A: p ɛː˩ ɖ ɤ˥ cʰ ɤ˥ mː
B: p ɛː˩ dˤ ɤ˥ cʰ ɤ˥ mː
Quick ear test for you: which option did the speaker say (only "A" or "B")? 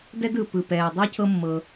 B